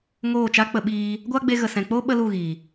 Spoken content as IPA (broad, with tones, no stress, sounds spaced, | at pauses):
ŋ oː˦˨ t͡ʃ a˦ k͡p ə˧ ɓ iː˧ | ɡʷ a˦ ɡ͡b e˧ ɣ ə˨ s ɛ̃˨ k͡p o˦ ɓ ə˦ l u˦˨ ɣ iː˨